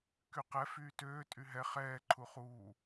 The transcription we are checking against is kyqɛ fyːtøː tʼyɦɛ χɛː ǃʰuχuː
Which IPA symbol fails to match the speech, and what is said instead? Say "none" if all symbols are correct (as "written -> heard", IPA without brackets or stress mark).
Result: none